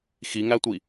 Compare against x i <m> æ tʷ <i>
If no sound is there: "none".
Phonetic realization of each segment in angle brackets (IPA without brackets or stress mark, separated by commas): ŋ, i